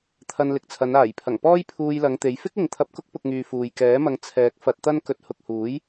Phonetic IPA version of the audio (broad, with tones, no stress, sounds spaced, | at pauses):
t̪ʰ ɐ˧ n l ɪ˨ k̚ t͡sʰ ɐ˨˧ n aː˨˩ j pʰ ɐ˨˩ ŋ p ɔː˥ j pʰ uː˧ j l ɐ˨˧ ŋ t̪ e˨˧ j f ɪ˥ k̚ ɪ˨ ŋ t̪ʰ ɐ˧ p̚ k ʊ˥ k̚ p ʊ˧ k̚ ŋ yː˨ f uː˨ j k ɛː˨˥ m ɐ˧ ŋ t͡sʰ ɛː˨˥ k̚ f ɐ˧ t̚ t̪ ɐ˥ n k ɵ˨˥ t̚ h ʊ˨ k̚ h uː˨˥ j